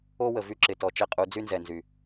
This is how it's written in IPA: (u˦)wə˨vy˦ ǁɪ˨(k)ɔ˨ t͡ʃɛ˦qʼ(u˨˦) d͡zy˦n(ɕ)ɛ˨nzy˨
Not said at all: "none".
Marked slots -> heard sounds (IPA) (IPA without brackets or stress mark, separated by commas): o˦, t, u˨˦, z